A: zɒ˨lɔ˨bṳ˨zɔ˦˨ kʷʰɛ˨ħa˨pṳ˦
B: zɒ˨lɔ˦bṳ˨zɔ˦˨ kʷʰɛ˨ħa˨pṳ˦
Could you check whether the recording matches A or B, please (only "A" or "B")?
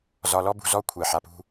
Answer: B